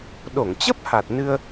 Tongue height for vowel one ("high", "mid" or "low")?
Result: mid